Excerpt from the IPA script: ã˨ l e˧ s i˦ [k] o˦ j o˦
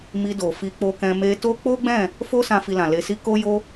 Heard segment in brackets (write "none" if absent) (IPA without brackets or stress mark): k